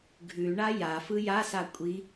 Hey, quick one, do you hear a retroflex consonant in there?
yes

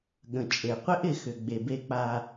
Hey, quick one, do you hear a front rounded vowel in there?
yes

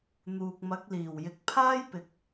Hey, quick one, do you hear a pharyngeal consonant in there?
no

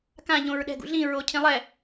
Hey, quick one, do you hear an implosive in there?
yes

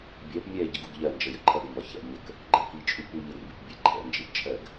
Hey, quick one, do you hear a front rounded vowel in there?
no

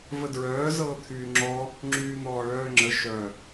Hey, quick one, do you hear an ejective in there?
no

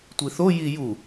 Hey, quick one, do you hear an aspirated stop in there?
no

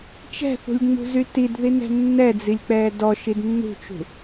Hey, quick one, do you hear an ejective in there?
no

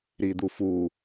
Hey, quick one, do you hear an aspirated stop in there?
no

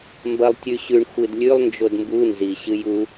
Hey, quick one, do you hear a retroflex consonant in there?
yes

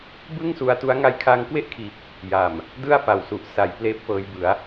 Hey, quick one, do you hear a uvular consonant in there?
no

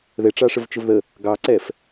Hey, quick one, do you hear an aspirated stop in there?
no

